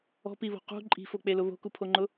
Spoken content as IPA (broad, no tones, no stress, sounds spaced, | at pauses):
ɔ̤ p i β o̤ q ṳ ǃʼ i̤ f o k͡p e l ʊ β o̤ k u pʰ o ŋ͡ǃ ʊ